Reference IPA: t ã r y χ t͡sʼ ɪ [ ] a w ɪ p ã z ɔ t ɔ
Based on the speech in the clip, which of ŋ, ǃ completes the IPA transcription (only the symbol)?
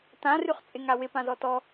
ŋ